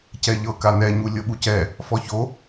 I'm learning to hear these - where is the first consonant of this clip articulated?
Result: palate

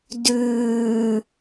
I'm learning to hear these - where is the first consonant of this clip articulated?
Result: tongue tip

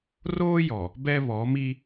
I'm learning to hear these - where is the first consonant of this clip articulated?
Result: tongue tip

